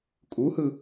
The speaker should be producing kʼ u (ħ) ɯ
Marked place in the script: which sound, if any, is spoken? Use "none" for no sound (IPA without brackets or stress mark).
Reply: h